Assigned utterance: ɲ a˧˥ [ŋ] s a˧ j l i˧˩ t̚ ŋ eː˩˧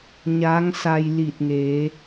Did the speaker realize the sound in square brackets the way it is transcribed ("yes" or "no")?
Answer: yes